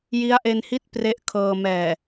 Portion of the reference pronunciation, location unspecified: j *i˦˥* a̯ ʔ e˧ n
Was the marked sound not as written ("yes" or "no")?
no